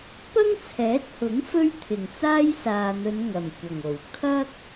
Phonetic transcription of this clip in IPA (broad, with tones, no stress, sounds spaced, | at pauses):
p ɐ˥ ŋ t͡sʰ ɛː˨˥ t̚ h ʊ˨˥ ŋ f ɵ˥ ɥ t̪ʰ ɪ˨˩ ŋ t͡s aː˥ j s aː˨ n̪ ɵ˨˧ n ŋ ɐ˨˩ m kʷ ɐ˨˩ ŋ o˨˩ w kʰ ɐ˥ k̚